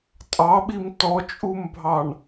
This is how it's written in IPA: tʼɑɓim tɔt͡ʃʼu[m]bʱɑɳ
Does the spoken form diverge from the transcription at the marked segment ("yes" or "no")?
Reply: no